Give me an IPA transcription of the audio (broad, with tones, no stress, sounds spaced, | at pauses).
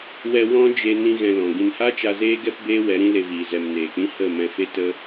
w ɛ˨ w ɔ̃˦ d͡ʒ e˧ n ĩ˧ ɣ ɛ̃˧ l ɔ̃˨ ɡ ĩ˨ n h a˦ t͡ʃ a˧ z eː˦ ɡ ɛ˦ p b eː˦ w ɛ˨˦ ɾ ĩ˦ l e˧ v iː˨ z ɛ˨ m n eː˨ k͡p ĩ˦ h ə˦˨ m ɛ̃˧ f e˦ t ə˦